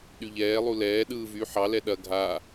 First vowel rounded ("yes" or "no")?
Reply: yes